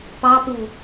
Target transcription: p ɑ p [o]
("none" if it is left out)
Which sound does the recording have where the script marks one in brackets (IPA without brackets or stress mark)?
u